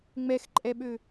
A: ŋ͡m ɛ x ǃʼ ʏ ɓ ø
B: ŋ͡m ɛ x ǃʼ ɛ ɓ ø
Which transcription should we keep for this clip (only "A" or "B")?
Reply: B